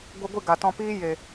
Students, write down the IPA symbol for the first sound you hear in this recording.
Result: ɡʷ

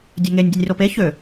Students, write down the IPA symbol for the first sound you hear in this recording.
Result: dʲ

